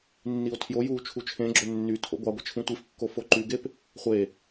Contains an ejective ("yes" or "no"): no